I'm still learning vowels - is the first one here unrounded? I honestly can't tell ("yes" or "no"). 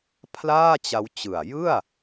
yes